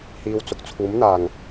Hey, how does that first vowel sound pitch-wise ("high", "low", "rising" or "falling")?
low